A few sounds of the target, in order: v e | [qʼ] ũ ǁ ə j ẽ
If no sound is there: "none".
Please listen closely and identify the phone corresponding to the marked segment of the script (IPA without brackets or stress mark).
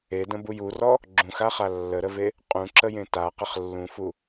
qʼ